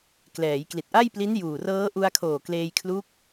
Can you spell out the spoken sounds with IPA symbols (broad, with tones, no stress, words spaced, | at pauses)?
klɛː˩˦jkli˨˩t̚ʔa˥˩jpli˦˥n juː˨˩rɤː˦˥ ʔu˧a̯kʰoː˨˩kleː˧jkʰlu˦˥k̚